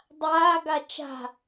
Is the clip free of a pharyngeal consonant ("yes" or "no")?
yes